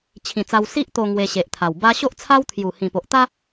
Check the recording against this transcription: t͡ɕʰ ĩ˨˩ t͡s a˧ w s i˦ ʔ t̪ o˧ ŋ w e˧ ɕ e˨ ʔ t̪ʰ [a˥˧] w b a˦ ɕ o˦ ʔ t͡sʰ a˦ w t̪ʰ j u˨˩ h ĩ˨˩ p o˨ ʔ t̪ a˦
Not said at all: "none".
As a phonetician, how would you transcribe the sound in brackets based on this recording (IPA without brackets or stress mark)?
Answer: a˨˩